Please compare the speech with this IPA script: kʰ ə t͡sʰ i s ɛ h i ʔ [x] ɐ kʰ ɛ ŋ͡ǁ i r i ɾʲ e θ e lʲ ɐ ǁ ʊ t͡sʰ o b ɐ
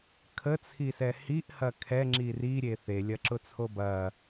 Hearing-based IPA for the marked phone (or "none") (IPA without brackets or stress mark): h